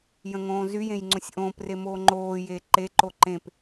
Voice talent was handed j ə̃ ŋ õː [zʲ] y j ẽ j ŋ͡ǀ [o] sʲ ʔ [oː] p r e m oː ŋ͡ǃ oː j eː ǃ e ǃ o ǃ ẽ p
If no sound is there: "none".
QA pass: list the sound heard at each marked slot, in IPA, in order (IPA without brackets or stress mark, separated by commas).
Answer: z, õ, õː